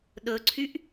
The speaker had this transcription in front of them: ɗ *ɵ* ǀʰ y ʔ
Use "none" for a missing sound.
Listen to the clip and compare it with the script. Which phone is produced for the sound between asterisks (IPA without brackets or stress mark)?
ɵ